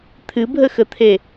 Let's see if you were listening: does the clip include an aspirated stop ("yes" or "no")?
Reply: yes